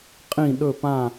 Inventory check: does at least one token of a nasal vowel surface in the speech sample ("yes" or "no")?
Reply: yes